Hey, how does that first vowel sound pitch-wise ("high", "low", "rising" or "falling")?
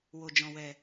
low